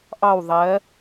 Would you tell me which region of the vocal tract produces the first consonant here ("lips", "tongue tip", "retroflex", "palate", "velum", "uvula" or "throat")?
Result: throat